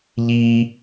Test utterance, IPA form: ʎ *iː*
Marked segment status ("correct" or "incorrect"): correct